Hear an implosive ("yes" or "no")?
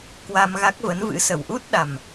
yes